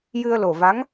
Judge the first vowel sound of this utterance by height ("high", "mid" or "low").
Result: high